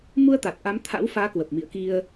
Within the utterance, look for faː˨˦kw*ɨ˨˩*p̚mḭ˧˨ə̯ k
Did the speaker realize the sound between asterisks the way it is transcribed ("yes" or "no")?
no